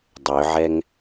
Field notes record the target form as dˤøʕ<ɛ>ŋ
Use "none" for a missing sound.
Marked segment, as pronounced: ɛ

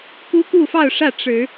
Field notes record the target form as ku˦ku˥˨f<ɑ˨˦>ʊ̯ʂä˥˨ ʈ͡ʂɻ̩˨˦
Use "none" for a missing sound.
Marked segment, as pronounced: ɑ˥˨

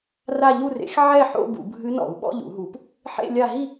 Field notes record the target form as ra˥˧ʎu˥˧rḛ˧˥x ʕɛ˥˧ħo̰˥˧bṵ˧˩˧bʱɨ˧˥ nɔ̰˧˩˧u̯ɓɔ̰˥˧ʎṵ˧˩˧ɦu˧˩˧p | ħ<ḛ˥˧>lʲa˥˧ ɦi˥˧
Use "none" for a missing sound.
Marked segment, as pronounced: ḛ˥˧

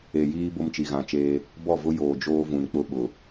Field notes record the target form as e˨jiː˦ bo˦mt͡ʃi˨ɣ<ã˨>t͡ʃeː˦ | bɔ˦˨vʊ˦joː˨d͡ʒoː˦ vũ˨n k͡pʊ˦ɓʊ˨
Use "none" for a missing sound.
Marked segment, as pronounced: ã˨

